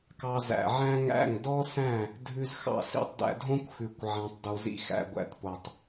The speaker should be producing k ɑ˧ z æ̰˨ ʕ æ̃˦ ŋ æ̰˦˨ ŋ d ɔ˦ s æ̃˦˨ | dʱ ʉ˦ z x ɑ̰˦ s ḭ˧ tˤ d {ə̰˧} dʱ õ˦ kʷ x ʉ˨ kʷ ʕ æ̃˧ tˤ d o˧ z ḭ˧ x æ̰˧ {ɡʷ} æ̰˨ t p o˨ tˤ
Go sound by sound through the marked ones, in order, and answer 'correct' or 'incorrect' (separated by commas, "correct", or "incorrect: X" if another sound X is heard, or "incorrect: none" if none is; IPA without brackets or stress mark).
incorrect: æ̰˧, correct